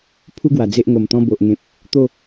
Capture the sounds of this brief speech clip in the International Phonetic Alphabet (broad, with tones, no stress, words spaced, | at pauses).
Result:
pʰu˦ɡwa˨˩ d͡ze˦ʔŋo˨˩mt̪ɔ̃˦ bo˨ʔŋẽ˨p̚ | t̪o˥˧